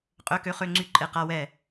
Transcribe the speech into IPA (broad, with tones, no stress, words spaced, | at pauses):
qʼø˧˥˧kø˧˥˧χø˧˥˧ŋ͡ǀy˦˨ ǃʼe˦˨qa˧˥˧wɛ˦˨